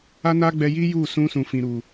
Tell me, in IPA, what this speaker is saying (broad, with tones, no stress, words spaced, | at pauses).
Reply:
a˦na˦ɡ͡bɛ˧ ji˦ju˦˨ sũ˧sũ˨fĩ˨ ɾu˨